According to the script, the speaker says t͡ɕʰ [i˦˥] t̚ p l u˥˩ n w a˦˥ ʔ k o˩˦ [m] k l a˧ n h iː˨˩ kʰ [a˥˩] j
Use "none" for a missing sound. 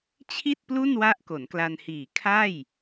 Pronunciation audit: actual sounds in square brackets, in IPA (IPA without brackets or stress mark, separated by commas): i˥˩, n, a˥˩